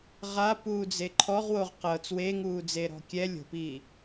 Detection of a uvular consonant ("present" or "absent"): present